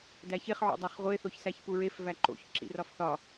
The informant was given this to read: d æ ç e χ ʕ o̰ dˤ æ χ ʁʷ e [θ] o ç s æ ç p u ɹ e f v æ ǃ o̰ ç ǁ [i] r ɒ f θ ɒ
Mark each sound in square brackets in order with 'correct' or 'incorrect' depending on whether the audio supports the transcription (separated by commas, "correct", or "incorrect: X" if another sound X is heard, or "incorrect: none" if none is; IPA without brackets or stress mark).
correct, incorrect: ḭ